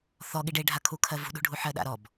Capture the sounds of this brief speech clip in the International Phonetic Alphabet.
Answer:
θ ɔ ɠ i ɖ e ɖʱ a kʰ u kʰ ɜ v ṳ ɗ ṳ ɖʱ u ħ ɜ ɗ a̰ ɾ ɔ b

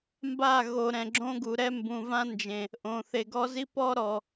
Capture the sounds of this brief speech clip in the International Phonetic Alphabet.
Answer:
m b a˦˨ ɣ o˨ ɾ ɛ̃˨ ɡ͡ǁ õ˦ ɡ u˨ ɾ ɛ˦ m b ũ˨ v ã˦ n d͡ʒ ẽ˨ | ʔ õ˨ θ e˨ ɡ ɔ˦ z i˦ p ɔ˦ ɾ ɔ˨

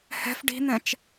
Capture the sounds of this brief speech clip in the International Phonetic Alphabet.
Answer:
h ɛ̤ f ɖ i̤ n̪ ɛ̃ t͡ʃ

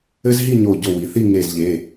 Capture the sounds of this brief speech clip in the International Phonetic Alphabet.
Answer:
ɘ˦ z ɦ i˥˨ ɲ o˧˩ ɟ o˧˩ w i˩ θ i˥˨ ŋ e˧˩ z ʎ e˩˧˩

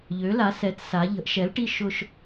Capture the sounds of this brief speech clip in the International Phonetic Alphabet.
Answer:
ʎ ø˨˥ l a˨˥ s ɛ˨˥ t s a˨˥ ʎ ə̤˨˥ ʔ ʃ ɛ˨˥ l ʈ i˥˧ ʃ ʊ˥˧ ʃ

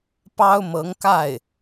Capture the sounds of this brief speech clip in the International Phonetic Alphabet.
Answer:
p ɑ˥ ʊ̯ m ɤ˧˥ ŋ k a˥˩ ɪ̯

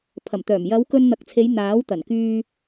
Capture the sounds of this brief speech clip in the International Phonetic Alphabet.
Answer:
pʰ ɐ˨˩ m t̪ œː˨˩ m j ɐ˨˧ w k ɵ˧ n n̪ ɐ˨ k̚ t͡sʰ e˨˧ j n̪ aː˨˥ w t̪ ɐ˨˩ n k yː˧

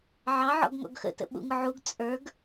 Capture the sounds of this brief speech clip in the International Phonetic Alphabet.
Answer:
ʕ ɑ ʕ ɔ̰ ɡ ŋ ɔ̰ ɡ x ə̰ t ə̰ ɓ ṵ ŋ ʊ ʕ u ɡ t͡sʼ ə˞ ɡ

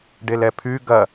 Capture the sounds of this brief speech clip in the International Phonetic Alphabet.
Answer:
ɖ e l ɛ pʰ y ɡ ɐ

